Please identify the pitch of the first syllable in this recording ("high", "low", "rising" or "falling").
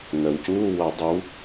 low